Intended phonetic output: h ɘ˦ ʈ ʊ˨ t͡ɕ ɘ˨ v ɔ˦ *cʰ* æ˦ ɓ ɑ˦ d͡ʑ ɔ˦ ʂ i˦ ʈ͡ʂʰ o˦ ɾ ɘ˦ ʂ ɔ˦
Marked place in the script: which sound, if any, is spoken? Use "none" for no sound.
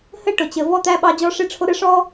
t̪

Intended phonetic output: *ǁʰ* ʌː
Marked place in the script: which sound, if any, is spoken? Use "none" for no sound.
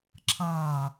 ǁʰ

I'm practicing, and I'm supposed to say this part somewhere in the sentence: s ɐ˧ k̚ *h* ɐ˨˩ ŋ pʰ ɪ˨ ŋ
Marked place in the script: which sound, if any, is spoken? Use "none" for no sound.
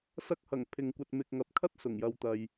h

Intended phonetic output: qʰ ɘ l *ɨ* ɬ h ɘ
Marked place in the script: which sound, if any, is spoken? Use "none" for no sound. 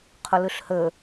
ɨ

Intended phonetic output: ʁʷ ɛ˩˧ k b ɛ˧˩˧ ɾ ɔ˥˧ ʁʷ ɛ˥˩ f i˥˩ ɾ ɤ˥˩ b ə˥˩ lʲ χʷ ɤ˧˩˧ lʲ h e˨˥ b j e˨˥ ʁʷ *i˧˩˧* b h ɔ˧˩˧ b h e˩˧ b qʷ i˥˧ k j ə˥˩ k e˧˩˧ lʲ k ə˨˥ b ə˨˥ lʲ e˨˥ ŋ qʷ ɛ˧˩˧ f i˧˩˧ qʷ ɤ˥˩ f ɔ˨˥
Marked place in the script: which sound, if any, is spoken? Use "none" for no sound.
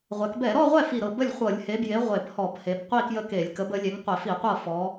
e˧˩˧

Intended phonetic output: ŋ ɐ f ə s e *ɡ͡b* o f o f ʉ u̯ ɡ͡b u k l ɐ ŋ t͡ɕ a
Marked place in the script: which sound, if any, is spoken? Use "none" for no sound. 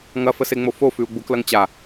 ŋ͡m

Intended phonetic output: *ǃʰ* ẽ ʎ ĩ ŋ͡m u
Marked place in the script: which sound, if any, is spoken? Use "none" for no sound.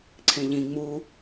ǀʰ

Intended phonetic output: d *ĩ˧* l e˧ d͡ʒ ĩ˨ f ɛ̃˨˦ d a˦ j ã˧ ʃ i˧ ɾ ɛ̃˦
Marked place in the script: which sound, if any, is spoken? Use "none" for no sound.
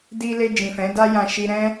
i˧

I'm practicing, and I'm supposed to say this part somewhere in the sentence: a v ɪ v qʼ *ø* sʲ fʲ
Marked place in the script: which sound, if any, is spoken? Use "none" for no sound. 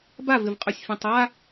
ø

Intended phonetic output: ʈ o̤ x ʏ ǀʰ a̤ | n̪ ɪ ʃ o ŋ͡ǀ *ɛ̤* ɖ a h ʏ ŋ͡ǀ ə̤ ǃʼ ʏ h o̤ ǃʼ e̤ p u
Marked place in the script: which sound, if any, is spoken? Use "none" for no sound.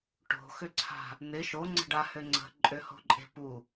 ə̤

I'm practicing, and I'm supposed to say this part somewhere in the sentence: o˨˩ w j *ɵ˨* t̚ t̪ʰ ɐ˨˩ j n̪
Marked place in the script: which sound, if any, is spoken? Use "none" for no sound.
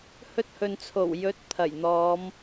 ɵ˨˥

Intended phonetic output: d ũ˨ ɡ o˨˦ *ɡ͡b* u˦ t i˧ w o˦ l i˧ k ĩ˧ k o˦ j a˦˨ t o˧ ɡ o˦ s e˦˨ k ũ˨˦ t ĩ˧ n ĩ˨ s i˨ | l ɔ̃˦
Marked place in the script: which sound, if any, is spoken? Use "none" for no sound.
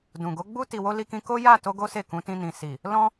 ɡ͡b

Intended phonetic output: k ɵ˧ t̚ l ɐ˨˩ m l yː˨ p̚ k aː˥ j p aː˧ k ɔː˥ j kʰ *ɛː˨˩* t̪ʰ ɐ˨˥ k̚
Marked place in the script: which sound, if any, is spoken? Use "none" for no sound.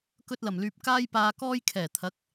ɛː˨˩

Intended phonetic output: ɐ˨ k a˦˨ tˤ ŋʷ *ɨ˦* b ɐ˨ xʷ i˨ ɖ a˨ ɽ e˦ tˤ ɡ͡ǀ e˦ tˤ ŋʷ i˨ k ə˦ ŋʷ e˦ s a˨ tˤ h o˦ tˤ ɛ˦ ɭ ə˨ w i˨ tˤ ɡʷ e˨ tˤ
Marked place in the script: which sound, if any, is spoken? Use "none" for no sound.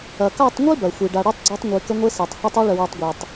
i˦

